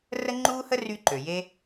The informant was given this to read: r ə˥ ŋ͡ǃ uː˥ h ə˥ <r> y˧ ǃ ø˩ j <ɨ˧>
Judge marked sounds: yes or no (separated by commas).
yes, no